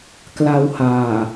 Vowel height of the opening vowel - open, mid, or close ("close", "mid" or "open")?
open